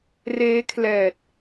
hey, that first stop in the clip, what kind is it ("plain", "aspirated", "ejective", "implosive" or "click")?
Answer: aspirated